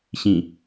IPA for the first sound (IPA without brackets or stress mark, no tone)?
ɕ